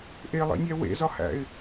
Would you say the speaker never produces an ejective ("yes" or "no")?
yes